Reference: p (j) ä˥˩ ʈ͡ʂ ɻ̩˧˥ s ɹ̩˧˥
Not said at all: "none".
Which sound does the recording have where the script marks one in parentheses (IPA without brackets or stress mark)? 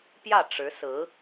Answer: j